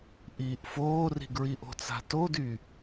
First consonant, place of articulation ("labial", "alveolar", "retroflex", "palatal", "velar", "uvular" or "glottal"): glottal